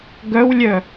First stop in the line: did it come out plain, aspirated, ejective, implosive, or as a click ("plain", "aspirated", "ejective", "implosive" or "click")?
plain